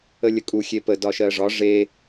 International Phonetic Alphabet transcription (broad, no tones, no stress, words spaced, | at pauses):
əlʲəkʼu xʲepə dɒʃɜʐɒ ʐe